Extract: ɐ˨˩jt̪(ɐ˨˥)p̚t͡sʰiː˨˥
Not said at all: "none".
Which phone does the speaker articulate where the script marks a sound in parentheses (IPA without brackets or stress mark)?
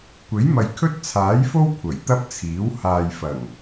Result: ɐ˥